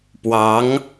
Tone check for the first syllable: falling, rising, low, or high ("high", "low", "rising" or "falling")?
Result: rising